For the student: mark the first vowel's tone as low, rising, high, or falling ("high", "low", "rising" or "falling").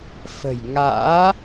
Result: low